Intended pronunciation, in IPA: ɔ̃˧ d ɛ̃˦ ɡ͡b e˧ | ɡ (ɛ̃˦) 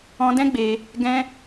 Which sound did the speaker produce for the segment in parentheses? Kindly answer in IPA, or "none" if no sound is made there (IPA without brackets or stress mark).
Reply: ɛ̃˦